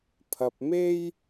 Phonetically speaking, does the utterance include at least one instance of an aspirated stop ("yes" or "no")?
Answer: yes